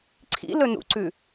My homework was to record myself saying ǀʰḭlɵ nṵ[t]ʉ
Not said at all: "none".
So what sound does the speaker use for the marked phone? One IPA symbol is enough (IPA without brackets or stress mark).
ǀ